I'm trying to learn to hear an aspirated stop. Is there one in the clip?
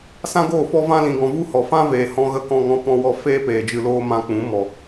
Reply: no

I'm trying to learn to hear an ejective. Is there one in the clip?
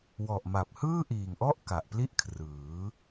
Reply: no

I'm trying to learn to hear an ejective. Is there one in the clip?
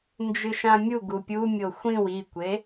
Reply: no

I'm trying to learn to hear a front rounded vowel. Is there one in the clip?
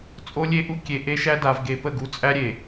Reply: no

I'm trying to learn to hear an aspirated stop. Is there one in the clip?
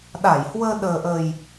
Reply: no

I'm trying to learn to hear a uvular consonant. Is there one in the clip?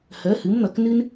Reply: no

